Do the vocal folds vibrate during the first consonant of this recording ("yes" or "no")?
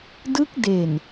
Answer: yes